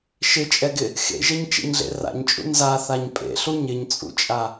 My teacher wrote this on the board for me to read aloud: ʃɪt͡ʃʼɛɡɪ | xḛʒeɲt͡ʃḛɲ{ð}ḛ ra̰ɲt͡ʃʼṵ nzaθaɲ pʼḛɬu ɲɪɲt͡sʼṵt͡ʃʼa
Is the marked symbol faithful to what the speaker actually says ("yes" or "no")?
no